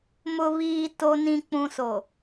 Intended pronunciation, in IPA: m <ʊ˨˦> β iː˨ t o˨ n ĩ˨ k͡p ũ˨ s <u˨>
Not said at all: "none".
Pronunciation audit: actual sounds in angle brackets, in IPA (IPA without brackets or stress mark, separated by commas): ʊ˨, o˨